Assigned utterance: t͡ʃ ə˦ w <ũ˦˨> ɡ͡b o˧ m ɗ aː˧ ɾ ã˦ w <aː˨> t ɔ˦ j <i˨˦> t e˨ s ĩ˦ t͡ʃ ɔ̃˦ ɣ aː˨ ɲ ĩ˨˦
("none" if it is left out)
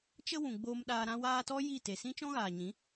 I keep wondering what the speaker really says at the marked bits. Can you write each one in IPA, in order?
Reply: ũ˨, aː˦, i˦˨

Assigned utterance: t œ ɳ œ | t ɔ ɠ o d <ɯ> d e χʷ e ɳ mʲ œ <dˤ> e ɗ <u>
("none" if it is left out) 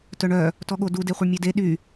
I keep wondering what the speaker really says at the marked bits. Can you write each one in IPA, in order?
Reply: u, d, y

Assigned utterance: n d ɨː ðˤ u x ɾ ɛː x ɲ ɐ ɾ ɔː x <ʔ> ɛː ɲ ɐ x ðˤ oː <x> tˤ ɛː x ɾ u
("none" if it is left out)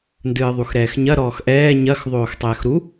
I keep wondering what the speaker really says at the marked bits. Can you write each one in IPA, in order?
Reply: ʔ, x

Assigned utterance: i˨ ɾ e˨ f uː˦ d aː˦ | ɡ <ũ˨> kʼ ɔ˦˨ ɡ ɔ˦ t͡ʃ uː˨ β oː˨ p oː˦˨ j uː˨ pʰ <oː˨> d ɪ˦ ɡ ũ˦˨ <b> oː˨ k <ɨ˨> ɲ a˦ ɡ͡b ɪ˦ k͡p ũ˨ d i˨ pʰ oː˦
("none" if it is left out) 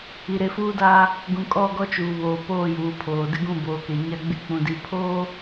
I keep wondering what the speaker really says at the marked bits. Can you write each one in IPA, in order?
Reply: ũ˨, oː˨, b, e˨

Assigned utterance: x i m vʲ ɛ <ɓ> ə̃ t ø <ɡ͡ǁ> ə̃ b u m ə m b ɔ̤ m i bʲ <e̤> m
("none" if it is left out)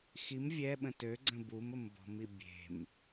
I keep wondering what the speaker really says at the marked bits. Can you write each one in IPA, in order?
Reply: ɓ, ɡ͡ǀ, e̤

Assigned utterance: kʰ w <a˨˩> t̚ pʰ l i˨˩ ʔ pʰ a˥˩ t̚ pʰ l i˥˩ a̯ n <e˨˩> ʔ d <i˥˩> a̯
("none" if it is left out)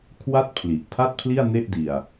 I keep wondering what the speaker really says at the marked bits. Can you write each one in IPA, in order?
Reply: a˥˩, e˥˩, i˧

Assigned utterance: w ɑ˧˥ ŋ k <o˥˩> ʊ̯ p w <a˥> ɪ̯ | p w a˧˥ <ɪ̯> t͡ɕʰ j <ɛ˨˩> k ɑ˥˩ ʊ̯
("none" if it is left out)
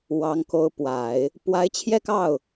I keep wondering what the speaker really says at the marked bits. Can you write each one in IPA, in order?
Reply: o˧˥, a˨˩˦, ɪ̯, ɛ˥˧

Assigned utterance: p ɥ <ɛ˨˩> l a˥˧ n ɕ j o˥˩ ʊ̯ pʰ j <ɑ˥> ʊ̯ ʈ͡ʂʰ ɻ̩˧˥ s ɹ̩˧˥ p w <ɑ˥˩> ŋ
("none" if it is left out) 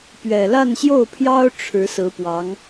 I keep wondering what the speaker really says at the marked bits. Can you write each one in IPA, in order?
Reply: ɛ˨˩, ɑ˥, ɑ˧˥

